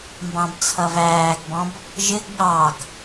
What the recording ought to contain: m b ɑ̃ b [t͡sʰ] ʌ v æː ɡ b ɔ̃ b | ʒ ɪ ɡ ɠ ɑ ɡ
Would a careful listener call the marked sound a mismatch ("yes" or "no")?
no